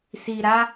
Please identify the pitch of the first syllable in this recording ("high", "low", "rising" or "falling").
low